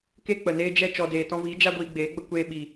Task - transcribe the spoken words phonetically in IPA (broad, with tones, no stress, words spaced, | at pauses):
ke˦k͡pə˨neː˦ d͡ʒɛ˧ t͡ʃɔ˨deː˨ tɔ̃˧viː˨˦ d͡ʒa˧ ɡʷiː˧ɡ͡beː˨˦ ɡ͡bə˧ kʷeː˧ɓiː˨